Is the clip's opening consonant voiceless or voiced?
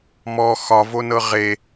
voiced